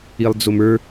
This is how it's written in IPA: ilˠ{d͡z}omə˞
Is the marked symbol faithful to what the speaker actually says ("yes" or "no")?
yes